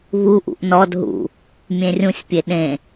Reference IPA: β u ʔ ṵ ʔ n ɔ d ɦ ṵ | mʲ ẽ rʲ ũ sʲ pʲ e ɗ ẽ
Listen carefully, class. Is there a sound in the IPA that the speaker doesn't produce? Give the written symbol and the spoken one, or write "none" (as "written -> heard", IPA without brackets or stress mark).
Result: none